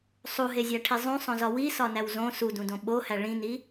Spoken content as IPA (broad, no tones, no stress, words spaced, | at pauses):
sˤuɦezʲæʈʰi zˤũsˤõzɒ wisɒnæw zõ sudũdõ ɓohæ ɭĩni